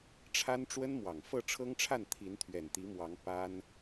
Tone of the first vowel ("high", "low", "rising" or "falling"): high